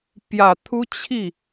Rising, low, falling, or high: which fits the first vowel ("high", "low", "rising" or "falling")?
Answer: low